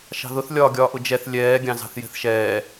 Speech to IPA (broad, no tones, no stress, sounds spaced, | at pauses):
ʃ ɑ̤ ð ʊ θ lʲ ɒː ɡʲ ɒː ʔ ʊ d͡ʒ ɛ θ lʲ ɛː ɡʲ ɑ̃ z ɑ̤ θ j ɛ̤ θ ʃ ɛː